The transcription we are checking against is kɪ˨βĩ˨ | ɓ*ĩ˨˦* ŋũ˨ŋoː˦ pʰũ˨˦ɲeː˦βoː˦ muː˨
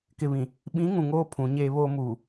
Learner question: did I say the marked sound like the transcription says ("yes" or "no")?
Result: yes